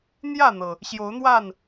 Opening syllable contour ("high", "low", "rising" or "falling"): falling